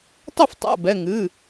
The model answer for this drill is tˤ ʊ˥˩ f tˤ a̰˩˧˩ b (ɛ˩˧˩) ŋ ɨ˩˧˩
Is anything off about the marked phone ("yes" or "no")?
no